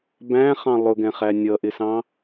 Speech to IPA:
bæ̃χɑ̃ lˠʊɡɛ̃χæ nʲʌʔɪsɑ̃

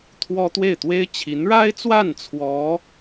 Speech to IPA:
t̪ʰwɔ˥ t̪we˥˩ɪ̯t̪we˥ɪ̯ t͡ɕʰi˧˥nɻa˥ɪ̯t͡swa˥˩n t͡sʰwɔ˧˥

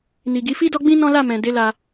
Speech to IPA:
ni˨ɡi˨˦ fi˦dɔ˦ɡ͡bĩ˦ nɔ̃˦ la˦˨mɛ̃˨ de˨˦ la˧

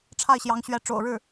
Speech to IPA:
ʈ͡ʂʰa˥˩ɪ̯ɕjɑ˧˥ŋɕɥɛ˧˥ ʈ͡ʂo̰˨˩ʊ̯ɻɻ̩˥˩

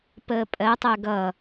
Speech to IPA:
pəːpʼɜtˤɜ ɡʌ

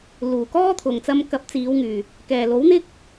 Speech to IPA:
luː˨˩ kɔː˥t̪ʰʊ˨ŋ t͡sɐ˧mkɐ˨˥p̚t͡siː˨˧wŋyː˨˩ | kɛː˨˩lo˨˥wn̪ɪ˥k̚

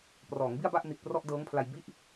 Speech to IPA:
prɔː˩˦ŋbi˥˩a̯ba˥˩ʔ ni˨˩t̚prɔ˥˩ʔdɤː˦˥ŋpʰla˧j bi˦˥ʔ

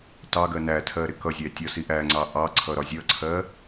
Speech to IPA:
tɑɡɜ nætʰɜ ɾɪkʌzʲæ tʲɒsiʔæŋ͡ǀɑ ʔɑǀʰʌ ɾɒzʲʌǀʰɜ

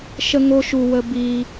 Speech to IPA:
ʃə˦ŋo˦ʃu˧ wə˦ bi˦

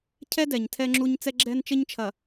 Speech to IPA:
cʰɛ˦dɛ˨ɲ tʰɛ˦ŋ͡ǁu˦ɲ t͡sɛ˦ɡ͡ǁɛ˦nt͡ʃɘ˦ɲt͡ʃʰɐ˨

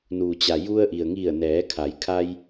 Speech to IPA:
nuː˩t͡ɕa˩ ju˧ə̯ʔi˩ə̯ŋi˧˩ə̯nɛː˩˧ kʰa˩˧jkʰa˧j

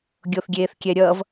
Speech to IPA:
ɡʲoθɡʲeːθkʲɛɾʲʌːv

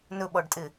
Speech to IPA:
nɵɓɔɖtʼɪ

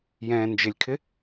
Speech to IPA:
jɛ̃ːnd͡ʒɪlʲkʰɪ

